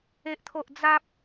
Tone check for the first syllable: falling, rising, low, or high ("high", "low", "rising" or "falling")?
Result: high